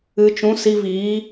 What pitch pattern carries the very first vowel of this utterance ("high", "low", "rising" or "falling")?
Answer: low